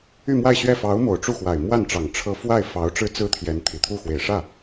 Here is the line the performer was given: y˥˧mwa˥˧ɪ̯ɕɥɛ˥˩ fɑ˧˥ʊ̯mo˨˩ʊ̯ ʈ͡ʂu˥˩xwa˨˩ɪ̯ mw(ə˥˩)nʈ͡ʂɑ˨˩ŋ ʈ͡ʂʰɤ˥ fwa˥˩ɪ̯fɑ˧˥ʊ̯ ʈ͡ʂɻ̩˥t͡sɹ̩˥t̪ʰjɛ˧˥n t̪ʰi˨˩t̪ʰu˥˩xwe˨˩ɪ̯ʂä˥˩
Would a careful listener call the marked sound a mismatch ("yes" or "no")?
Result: yes